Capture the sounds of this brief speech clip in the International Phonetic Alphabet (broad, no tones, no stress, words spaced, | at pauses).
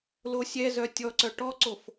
losʲɛzœ tʲɔǀœ ʈɔǀof